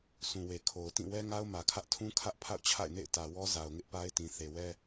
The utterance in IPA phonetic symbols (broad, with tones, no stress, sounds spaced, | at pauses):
s ũ˨ w e˨ kʰ o˨ ʊ̯ t ĩ˦˨ w ɛ˦ ŋ a˦ ʊ̯ m ä˨ kʰ ä˦ ʔ tʰ ũ˦ kʰ ä˦ ʔ pʰ a̰˦˨ ʊ̯ t͡ɕʰ a̰˦˨ ɪ̯ n ḛ˦˨ ɪ̯ t ä˨ w ɔ˦ z a˨ ʊ̯ ŋ ɪ˦ ʔ p a˦ ɪ̯ t ĩ˨ θ e˨ w ɛ˦